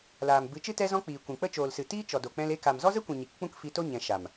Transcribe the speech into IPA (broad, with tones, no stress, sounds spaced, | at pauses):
l aː˨ m b ɨ˨˦ t͡ʃ ɨ˦ t ɛ˦ z ɔ̃˦ k͡p iː˨ kʷ ĩ˨ k͡p ə˦ t͡ʃ oː˨ l s ɨ˨ t iː˦ t͡ʃ ɔ˨ d o˨ k͡p ɛ̃˧ l e˧ k a˨ m z ɔ˦ z ə˦ kʷ ĩ˨ ɲ i˨ k k͡p ũ˦ k f i˧ t o˦ ɲ ɛ̃˨ ʃ a˨ m